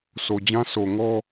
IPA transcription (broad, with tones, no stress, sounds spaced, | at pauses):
s o˨ d͡ʑ ã˦ sʰ o˨ ŋ ɔ˦